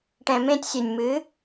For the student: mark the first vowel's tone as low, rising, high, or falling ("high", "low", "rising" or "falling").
low